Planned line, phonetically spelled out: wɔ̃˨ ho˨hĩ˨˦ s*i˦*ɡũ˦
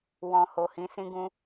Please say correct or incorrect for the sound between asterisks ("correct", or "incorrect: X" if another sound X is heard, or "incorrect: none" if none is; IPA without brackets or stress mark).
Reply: incorrect: ĩ˦